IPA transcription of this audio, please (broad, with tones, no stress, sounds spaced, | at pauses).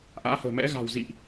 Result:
ʔ a̰ː˧˥ h ə̤ː˨˩ m ɛ̰˧˥ ɣ a̤˨˩ w z ḭ˧˨ ʔ